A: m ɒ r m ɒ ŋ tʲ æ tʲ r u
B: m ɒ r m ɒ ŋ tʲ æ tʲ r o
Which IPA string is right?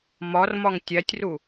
A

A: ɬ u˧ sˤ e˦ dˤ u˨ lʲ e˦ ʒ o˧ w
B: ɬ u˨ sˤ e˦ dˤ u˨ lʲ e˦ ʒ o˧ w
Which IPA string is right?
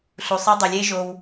B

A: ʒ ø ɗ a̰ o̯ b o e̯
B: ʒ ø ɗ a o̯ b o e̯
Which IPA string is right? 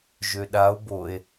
B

